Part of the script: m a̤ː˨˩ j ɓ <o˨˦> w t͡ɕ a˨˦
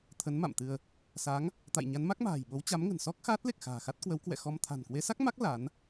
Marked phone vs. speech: correct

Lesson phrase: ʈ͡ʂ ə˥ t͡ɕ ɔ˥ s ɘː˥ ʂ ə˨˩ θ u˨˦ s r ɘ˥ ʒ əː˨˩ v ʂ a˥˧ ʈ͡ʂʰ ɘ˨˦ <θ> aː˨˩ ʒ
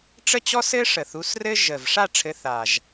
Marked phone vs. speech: correct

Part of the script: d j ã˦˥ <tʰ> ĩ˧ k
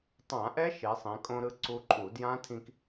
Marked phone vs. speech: correct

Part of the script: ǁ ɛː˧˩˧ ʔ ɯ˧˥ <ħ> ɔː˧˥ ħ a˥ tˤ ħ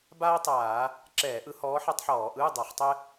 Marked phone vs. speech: incorrect: h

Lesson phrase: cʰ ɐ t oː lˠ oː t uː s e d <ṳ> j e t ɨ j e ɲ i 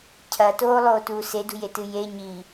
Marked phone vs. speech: correct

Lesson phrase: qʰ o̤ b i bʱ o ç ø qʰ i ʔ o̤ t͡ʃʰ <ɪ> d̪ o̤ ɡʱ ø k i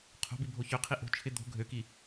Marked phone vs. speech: correct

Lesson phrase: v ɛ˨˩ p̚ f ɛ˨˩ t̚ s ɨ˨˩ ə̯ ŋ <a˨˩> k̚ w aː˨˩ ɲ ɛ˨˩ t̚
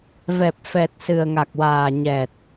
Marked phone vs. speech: correct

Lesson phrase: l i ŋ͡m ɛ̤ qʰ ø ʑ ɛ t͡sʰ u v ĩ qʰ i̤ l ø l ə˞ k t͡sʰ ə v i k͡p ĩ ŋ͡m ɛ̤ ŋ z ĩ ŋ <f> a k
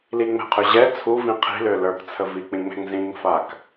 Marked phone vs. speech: correct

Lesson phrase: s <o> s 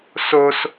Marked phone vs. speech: correct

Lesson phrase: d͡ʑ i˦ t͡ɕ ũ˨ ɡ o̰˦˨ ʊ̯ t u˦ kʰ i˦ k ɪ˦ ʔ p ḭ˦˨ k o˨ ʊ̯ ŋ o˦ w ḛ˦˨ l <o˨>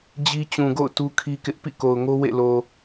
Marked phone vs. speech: correct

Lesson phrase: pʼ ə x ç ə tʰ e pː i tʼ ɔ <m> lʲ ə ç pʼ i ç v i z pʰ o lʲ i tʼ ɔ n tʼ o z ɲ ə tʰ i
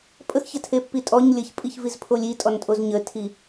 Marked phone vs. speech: incorrect: ɲ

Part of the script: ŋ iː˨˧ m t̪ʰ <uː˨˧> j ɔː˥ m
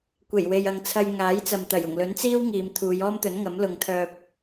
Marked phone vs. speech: correct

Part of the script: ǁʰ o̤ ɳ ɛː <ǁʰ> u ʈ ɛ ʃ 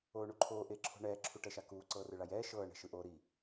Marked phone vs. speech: correct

